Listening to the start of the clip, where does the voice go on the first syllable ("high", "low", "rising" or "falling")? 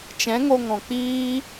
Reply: rising